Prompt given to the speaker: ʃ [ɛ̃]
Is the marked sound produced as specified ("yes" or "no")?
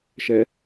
no